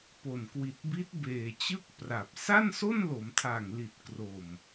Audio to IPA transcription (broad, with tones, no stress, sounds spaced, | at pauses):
p o˨˩ n k w i˨˩ t̚ b i˦˥ t̚ b eː˨˩ t͡ɕ ɯ˥˩ k̚ p r a˨˩ p̚ s a˥˩ n s o˥˩ n l o˩˦ m tʰ a˨˩ ŋ l i˨˩ t̚ k r o˨˩ m